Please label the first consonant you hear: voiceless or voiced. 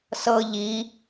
voiceless